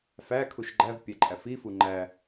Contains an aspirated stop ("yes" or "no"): yes